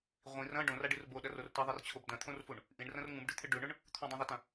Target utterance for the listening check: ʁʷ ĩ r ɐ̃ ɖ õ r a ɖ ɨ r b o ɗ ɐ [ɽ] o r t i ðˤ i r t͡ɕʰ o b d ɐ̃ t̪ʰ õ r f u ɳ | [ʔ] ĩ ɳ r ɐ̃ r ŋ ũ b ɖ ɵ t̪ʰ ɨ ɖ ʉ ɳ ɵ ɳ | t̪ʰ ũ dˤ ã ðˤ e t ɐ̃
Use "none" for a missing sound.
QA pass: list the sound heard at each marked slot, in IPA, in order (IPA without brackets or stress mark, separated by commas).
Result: r, ʔ